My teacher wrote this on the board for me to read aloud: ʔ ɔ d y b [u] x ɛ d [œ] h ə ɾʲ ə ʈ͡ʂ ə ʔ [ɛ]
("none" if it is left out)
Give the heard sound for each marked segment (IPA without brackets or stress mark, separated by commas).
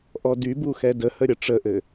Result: u, ə, ɘ